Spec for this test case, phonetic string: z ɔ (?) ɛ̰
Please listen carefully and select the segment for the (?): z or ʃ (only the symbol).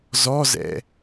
z